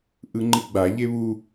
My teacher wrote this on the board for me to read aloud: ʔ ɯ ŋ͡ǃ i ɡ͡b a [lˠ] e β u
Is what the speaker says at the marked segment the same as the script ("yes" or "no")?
no